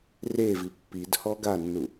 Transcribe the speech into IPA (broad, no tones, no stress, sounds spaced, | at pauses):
r e v i pː i d h ɔ ɡ a nː u